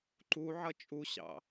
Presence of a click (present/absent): present